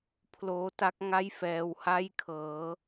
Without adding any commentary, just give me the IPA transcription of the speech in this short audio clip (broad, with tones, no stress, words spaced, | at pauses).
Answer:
pʰloː˦˥ta˦˥k̚ ŋa˥˩jfɛː˧wha˥˩jkʰɤː˩˦